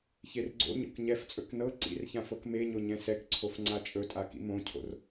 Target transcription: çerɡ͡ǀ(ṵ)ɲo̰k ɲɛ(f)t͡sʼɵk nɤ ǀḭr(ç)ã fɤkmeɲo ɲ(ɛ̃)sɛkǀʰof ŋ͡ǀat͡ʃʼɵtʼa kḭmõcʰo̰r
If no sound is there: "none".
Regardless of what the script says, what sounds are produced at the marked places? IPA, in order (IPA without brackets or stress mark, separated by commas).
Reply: o̰, f, ç, ɛ̃